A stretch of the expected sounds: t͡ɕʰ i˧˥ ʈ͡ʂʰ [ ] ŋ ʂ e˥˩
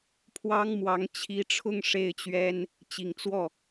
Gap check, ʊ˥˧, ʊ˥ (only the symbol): ʊ˥˧